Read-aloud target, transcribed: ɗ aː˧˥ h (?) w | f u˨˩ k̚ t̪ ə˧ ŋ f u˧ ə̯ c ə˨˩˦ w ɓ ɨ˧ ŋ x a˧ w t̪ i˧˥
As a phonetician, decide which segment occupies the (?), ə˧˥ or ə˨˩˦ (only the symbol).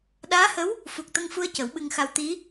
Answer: ə˧˥